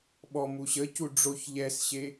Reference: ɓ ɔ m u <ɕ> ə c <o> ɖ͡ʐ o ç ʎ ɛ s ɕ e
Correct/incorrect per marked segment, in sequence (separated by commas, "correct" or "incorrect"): correct, incorrect